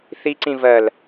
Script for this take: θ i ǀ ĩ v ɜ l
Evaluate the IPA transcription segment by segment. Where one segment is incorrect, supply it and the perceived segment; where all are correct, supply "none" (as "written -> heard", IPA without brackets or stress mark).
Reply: none